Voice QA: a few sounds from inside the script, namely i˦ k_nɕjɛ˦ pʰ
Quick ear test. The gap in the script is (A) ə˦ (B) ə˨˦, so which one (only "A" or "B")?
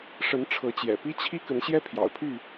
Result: B